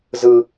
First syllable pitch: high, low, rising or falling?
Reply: high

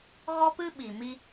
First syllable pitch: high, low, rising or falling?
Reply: high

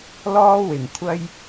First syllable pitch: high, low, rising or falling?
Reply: high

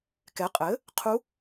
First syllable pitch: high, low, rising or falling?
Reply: rising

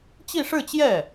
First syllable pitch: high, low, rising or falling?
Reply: falling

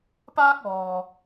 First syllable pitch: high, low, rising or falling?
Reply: high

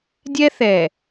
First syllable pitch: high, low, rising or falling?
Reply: high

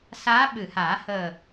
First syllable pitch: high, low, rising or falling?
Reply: rising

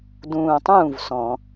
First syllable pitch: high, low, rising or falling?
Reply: low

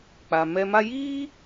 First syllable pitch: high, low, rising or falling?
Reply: low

